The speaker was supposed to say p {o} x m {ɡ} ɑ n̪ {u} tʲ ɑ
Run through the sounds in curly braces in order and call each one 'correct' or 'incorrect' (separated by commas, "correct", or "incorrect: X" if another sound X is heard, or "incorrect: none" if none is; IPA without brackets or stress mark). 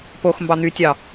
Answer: correct, incorrect: b, incorrect: y